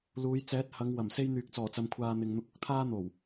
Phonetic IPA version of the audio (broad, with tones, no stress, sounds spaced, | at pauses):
l uː˨˧ j t͡s ɛː˨˥ t̚ h ɐ˨˧ ŋ w ɐ˨˩ m s e˥ j n̪ yː˨ k̚ t͡s ɔː˨˩ t͡s ɐ˨ m kʷʰ aː˧ n̪ ɪ˨ ŋ n̪ ʊ˧ k̚ ʊ˥ k̚ t̪ʰ aː˥ n̪ o˨˩ w